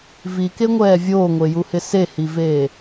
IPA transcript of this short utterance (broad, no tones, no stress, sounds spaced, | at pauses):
v i k e ŋʷ ɛː vʲ oː ŋʷ e j u h ɪ s e h i v eː